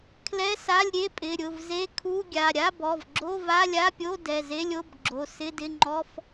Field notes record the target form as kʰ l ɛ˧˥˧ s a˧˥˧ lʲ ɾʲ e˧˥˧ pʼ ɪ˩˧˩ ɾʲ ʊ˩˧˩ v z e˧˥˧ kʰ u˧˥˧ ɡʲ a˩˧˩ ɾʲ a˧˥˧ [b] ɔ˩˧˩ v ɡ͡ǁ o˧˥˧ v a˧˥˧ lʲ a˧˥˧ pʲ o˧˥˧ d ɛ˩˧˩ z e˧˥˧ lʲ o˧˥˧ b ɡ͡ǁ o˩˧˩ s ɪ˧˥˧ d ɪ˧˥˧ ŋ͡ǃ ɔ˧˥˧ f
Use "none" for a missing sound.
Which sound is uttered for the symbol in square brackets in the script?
b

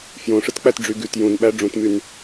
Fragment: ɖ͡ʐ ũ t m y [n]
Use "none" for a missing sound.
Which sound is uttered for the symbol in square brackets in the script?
n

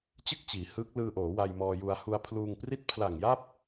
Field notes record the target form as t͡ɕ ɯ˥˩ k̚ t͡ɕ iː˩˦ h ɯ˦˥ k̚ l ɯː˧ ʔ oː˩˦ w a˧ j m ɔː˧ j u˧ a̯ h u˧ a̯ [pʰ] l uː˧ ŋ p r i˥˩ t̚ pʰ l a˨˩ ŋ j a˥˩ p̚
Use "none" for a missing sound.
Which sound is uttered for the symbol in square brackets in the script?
pʰ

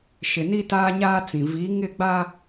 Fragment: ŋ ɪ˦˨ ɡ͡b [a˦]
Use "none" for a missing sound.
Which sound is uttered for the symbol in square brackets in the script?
a˦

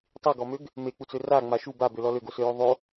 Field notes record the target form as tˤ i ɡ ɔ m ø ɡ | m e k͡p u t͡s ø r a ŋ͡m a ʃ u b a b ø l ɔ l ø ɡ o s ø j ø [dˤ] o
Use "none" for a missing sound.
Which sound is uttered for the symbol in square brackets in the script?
ðˤ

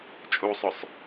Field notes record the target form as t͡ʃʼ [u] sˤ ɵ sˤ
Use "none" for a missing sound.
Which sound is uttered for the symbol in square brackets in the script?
u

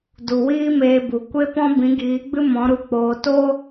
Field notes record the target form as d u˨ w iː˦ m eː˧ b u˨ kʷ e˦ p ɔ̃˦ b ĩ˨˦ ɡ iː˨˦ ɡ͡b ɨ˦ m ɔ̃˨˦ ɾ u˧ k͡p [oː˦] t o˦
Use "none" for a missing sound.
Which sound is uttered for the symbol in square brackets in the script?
oː˧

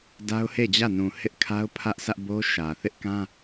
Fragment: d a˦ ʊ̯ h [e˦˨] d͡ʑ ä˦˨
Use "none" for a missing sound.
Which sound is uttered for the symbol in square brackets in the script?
e˦˨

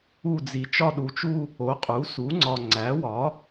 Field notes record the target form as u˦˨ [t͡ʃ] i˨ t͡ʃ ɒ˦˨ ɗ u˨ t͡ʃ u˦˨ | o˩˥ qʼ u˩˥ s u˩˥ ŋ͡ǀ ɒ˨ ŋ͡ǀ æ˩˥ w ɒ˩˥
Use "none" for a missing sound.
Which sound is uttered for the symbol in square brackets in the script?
d͡z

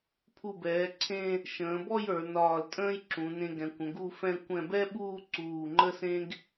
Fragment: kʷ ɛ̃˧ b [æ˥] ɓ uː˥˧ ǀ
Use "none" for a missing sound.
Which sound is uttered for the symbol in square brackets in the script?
ɛ˥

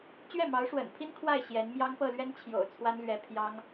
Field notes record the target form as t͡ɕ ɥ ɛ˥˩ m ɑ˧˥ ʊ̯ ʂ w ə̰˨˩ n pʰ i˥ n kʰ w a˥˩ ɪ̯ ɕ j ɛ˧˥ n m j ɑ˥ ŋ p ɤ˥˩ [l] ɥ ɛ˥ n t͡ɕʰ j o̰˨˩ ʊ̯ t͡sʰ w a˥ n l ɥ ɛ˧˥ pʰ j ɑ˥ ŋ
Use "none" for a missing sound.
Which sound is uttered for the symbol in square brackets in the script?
l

